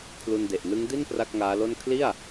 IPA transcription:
kʰlu˧nde˨˩ʔnɯ˦˥ŋ di˥˩n pra˥˩k̚ŋaː˦˥lo˥˩n kʰli˥˩a̯

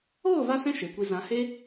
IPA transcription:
oː˦˨va˧sɛ̃˧ ʃe˨kʷi˧ zã˨˦he˦

